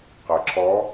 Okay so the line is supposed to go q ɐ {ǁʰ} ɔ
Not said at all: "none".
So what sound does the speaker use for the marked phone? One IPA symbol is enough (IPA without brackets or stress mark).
ǁʰ